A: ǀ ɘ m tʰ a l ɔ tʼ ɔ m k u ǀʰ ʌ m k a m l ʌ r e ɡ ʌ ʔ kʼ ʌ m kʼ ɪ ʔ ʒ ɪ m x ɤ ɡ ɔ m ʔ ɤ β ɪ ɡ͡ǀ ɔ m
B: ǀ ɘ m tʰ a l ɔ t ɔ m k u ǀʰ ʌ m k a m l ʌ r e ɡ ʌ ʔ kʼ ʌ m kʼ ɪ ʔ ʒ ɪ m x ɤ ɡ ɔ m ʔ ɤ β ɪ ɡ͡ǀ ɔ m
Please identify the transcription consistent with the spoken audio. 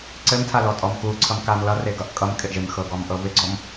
A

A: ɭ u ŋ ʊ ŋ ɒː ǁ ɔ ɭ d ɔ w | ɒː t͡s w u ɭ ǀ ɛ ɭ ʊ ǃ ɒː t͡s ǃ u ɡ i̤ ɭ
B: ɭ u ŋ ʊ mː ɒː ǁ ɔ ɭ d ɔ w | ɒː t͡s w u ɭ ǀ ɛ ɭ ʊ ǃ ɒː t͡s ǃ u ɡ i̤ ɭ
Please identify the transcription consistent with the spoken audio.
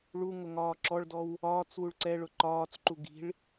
A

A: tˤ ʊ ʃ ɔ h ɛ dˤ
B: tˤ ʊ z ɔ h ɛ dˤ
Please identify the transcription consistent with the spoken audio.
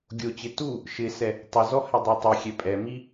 B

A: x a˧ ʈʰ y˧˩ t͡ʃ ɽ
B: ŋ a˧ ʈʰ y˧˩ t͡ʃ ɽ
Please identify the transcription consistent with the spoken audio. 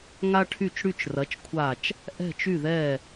B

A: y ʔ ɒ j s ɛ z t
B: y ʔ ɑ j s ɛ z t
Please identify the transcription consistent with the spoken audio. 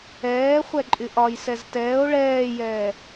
A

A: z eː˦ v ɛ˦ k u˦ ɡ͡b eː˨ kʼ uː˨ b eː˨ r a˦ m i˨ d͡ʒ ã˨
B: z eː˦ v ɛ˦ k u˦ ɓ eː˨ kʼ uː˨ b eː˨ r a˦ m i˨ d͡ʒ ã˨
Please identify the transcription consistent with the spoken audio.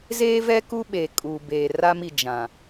B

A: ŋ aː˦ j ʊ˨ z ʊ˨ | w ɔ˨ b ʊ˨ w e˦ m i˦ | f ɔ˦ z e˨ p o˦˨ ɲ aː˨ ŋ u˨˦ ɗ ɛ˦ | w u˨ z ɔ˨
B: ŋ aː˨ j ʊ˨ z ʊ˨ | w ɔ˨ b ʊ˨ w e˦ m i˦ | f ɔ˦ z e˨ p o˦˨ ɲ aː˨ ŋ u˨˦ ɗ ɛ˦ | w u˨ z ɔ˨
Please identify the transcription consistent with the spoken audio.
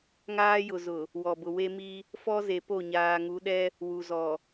A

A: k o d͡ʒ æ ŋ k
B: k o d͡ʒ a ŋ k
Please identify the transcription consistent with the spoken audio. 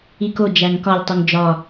A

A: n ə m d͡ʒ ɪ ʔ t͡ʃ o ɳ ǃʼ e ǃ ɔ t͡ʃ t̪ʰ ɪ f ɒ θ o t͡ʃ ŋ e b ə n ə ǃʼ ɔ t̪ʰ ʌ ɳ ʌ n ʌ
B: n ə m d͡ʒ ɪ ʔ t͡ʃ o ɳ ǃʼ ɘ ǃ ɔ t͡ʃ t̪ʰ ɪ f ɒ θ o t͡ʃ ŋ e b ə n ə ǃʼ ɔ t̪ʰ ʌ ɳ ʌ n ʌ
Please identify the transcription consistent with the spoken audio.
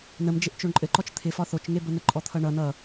B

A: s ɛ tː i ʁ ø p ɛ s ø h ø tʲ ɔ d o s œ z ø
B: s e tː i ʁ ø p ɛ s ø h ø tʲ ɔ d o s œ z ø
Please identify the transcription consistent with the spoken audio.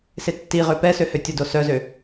B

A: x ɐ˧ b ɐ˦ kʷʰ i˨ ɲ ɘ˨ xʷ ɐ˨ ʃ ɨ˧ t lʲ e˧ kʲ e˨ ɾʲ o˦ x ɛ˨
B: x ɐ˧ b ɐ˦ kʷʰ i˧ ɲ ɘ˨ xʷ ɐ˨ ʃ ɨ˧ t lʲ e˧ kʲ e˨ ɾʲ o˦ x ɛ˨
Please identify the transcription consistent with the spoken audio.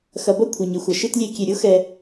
A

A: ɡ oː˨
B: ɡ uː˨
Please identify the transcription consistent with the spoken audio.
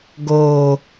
A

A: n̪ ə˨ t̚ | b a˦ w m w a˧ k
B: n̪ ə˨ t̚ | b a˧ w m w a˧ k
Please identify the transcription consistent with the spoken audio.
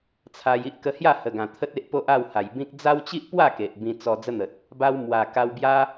A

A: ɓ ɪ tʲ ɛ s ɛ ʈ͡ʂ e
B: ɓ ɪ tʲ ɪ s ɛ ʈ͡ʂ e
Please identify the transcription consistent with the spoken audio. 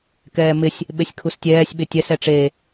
A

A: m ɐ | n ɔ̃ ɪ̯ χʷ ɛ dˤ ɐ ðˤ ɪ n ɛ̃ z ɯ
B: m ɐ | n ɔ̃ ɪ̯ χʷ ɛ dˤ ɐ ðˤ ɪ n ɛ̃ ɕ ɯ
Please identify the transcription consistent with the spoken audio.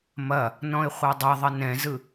A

